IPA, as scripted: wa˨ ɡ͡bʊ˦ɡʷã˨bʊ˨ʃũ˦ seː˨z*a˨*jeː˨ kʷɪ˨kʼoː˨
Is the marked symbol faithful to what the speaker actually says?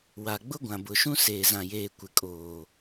no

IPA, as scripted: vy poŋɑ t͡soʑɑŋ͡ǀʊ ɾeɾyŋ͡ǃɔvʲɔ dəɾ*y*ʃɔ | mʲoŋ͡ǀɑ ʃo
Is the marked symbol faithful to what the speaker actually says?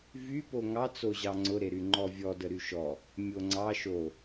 yes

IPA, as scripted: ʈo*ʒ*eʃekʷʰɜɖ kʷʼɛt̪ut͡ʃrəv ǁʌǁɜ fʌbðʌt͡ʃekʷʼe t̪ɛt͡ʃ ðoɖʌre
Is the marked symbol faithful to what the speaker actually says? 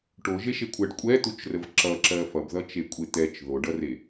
yes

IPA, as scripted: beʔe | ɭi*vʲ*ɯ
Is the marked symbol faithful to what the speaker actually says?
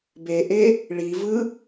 no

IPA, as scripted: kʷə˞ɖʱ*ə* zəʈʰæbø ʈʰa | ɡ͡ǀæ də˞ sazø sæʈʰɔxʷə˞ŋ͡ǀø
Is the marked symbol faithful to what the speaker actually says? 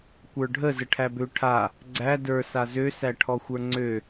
yes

